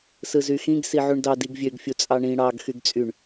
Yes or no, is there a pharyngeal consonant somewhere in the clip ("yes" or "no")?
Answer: yes